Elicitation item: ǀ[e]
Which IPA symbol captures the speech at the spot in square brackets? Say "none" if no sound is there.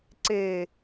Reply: e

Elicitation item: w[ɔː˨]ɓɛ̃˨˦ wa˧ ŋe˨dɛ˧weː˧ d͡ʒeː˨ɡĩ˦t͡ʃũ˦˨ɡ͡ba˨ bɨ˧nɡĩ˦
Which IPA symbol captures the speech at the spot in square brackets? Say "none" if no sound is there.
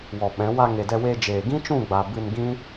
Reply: ɔ˨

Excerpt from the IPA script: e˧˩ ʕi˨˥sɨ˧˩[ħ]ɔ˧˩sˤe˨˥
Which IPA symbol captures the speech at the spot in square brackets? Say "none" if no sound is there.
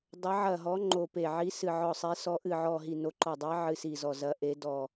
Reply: ʕ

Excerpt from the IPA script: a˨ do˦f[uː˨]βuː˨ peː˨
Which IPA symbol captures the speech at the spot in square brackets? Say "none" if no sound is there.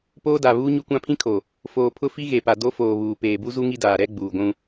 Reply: oː˨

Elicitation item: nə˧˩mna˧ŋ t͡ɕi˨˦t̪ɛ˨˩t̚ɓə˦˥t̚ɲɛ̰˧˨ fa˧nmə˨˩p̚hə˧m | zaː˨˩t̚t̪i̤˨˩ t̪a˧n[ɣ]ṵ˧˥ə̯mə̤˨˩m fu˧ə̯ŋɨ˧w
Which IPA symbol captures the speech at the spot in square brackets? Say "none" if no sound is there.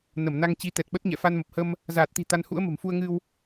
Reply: h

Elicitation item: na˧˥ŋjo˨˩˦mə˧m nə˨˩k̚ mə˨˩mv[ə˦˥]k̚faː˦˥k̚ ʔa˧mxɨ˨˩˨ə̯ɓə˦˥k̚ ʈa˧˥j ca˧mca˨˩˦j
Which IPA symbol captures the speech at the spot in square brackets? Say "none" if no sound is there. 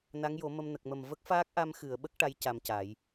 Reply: ə˦˥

